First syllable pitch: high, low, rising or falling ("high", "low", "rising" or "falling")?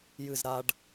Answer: falling